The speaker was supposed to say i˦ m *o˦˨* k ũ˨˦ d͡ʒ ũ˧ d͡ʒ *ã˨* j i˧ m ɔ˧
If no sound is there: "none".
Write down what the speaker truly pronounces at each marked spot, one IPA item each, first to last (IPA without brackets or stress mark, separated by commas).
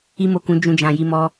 o˦˨, ã˨